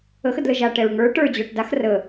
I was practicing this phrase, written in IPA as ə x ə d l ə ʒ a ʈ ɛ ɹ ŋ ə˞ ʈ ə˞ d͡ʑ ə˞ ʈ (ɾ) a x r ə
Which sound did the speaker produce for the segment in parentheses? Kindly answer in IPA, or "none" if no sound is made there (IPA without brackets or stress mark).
d